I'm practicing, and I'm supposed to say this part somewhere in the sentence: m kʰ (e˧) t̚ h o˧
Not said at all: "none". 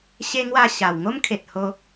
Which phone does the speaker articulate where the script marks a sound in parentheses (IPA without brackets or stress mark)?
e˨